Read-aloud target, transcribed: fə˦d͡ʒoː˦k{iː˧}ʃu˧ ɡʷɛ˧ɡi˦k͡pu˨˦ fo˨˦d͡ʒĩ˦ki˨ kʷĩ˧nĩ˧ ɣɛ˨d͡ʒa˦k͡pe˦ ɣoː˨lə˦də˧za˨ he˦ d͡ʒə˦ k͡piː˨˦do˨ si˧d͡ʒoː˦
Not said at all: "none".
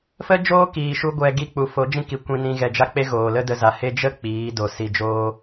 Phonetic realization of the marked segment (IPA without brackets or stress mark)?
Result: iː˨